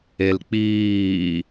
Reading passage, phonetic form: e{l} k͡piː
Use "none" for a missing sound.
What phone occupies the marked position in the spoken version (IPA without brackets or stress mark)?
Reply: l